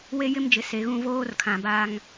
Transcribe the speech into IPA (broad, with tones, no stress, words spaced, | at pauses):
we˦jɪ˦md͡ʒɪ˨ se˨˦ɣũ˦ voː˦r kʰã˨baː˦ŋ